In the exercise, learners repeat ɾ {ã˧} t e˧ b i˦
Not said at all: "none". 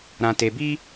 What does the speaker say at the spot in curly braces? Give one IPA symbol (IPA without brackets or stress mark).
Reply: ã˧